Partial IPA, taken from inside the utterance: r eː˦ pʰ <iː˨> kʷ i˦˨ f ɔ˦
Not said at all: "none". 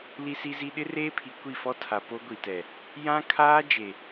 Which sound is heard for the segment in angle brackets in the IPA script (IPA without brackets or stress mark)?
i˨